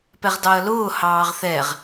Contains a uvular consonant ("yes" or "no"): yes